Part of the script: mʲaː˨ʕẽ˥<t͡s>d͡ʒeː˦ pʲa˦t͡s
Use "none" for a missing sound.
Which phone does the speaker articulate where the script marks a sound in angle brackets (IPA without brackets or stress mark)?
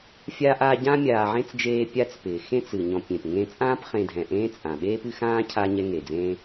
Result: t͡s